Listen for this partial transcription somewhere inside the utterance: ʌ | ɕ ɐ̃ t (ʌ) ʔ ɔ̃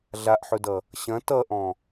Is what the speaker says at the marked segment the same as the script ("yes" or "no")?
yes